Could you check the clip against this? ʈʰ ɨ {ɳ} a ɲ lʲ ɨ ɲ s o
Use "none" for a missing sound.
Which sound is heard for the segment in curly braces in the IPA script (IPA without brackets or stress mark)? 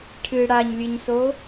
ɽ